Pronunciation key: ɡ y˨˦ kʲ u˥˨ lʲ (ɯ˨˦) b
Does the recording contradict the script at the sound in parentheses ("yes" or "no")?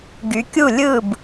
yes